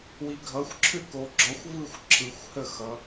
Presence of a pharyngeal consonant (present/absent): absent